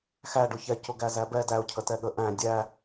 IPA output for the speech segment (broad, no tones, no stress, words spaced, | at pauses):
xæ ɖʊçɛcʊ ɡæzæbɛ dæʊ̯cʰətɛ ɠə ʔæ̃ dʲæ